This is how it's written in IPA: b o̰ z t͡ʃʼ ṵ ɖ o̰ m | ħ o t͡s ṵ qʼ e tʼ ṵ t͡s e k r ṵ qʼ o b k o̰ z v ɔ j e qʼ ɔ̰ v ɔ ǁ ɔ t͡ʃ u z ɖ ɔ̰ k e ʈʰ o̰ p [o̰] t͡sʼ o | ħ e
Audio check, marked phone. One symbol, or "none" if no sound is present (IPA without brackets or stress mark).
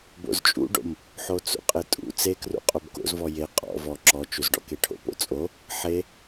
o̰